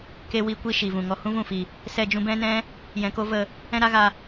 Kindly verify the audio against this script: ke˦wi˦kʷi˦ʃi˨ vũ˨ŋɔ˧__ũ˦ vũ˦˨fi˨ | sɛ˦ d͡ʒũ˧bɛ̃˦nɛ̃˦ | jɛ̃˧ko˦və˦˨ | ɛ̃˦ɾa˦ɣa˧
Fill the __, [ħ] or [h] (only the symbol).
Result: h